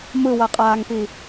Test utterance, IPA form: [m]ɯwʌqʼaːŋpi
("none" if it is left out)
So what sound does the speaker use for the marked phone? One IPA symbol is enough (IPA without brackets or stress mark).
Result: m